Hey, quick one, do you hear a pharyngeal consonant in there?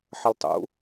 yes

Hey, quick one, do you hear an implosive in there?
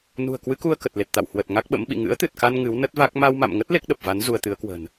yes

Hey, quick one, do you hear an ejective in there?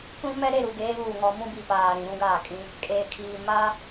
yes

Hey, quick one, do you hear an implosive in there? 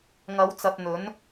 no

